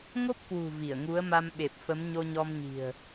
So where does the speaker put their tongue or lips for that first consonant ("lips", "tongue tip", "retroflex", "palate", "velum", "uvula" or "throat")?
velum